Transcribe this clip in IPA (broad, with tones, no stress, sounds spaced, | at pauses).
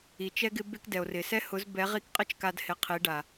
i˨ t͡ʃ ɛ˦ ɡ ɪ˦ b e˦ k d ɛ˨ o̯ r ɪ˨ s ɛ˦ h ʊ˨˦ z b ɛ˨˦ ʁ i˦ k qʼ ɪ˦ t͡ʃ k a˧ d h ɪ˨ qʰ i˨˦ ɖ a˨